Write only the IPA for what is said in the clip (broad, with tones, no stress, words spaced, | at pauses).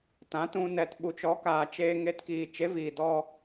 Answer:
tã˨˦tũ˧ nɛ˨t ɓu˨t͡ʃɔ˨˦kaː˨ t͡ʃeː˧ ŋe˧tkiː˨ t͡ʃe˨˦viː˨dɔ˧